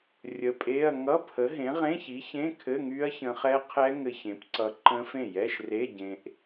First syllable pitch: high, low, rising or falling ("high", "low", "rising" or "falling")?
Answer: rising